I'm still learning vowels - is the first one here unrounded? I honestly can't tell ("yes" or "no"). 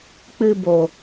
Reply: yes